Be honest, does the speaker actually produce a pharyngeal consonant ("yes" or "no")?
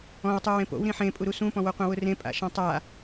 yes